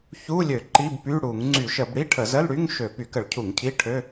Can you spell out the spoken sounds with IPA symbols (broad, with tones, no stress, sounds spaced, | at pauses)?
ç u˧˥˧ lʲ ø˧˩˧ ǃ i˧˥˧ b p y˧˥˧ ɽ u˧˩˧ ŋ ŋ͡ǀ y˧˩˧ ʃ ə˧˩˧ b ɽ i˧˥˧ ʈʰ ə˧˩˧ z ə˧˥˧ l ɽ y˧˥˧ ŋ ʃ ø˧˩˧ p y˧˩˧ k ə˧˩˧ ɭ cʰ u˧˩˧ ŋ cʰ i˧˥˧ ʈʰ ø˧˥˧